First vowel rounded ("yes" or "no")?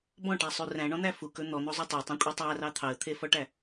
yes